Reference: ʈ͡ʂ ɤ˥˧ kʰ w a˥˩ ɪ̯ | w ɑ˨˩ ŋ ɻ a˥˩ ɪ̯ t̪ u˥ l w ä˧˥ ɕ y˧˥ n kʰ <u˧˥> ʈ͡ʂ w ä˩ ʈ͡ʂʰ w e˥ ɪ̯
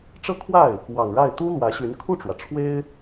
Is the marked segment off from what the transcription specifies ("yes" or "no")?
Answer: yes